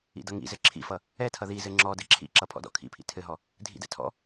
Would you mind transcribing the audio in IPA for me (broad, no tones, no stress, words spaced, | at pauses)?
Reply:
ḭdʌŋḭzɘ ǁʰḭfʌ | ɛtʰʌ ðizɘ ŋ͡ǁɔdɘ ǁʰḭǁʌ pʰɔ̰dɔ̰kʰḭpʰḭ tʰɘɦɔ | dʱḭdɛ̰ tʰɔ̰